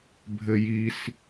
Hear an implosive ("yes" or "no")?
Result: no